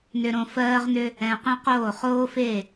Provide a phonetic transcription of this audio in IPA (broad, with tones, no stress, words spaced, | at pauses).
nʏ˧ ɾõ˧fɜː˦ʁnʏ˦ | ɛ̃˧qẽ˦qoː˦˨ χoː˦fe˦˨